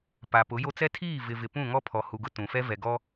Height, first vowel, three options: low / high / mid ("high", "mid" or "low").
low